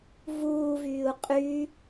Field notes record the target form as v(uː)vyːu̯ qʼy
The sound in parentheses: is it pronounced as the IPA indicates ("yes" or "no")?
yes